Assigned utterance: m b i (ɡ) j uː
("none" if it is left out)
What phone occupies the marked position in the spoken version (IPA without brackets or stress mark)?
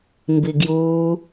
ɡ